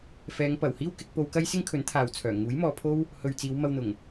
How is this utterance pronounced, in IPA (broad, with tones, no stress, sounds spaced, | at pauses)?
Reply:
f ɛː˨˧ ŋ p ɐ˨˩ w h iː˥ w k ɪ˧ k̚ p o˧ w k ɐ˥ j s ɪ˥ ŋ kʰ ɵ˨˥ n t̪ʰ aː˨ w t͡sʰ œː˨˩ ŋ uː˨˥ j m ɔː˨ pʰ o˥ w | h ɵ˨ ɥ t͡s iː˨˧ w m ɐ˧ w n̪ ʊ˨˩ ŋ